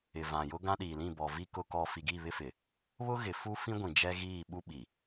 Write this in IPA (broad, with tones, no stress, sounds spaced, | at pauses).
ɪ˨ v ã˨ j ʊ˦ ɡ ã˦ ɗ iː˨ l ĩ˦˨ b ɔ˨ v i˦ k ʊ˦ k ɔ˦ f i˨ ɡ i˦˨ β ɪ˦ f ɪ˨ | β ʊ˦ ɣ ɪ˨ f u˦ f ĩ˦ ɡʷ ĩ˨ d͡ʒ ɛ˦ ɣ iː˦˨ ɓ u˦ ɓ i˨